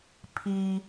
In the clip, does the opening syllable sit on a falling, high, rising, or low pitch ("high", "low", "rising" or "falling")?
low